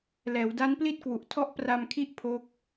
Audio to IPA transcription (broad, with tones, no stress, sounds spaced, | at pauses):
l ɛː˩˦ w d a˦˥ n p l i˥˩ t̚ k w u˨˩ ʔ tʰ ɔ˦˥ ʔ p r a˧ m kʰ i˦˥ ʔ pʰ o˦˥ k̚